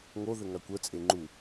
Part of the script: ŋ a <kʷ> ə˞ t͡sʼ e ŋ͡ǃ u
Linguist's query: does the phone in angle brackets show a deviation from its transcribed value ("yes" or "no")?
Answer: no